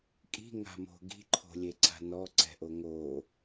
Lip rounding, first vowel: unrounded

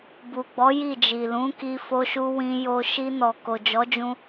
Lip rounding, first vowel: rounded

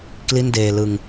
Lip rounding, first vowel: unrounded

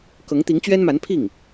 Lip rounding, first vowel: unrounded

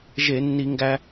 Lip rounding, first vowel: unrounded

